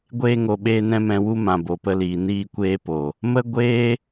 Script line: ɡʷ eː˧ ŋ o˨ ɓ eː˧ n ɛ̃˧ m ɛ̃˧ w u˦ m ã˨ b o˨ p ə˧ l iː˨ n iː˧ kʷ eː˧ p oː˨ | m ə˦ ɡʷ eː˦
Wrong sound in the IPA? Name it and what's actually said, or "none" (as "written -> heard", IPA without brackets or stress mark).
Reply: oː˨ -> o˨